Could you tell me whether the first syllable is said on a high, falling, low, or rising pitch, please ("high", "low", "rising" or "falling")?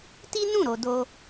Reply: high